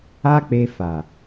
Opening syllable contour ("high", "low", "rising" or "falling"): high